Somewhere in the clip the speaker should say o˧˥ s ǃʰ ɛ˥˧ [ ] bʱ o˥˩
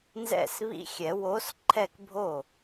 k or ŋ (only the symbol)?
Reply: k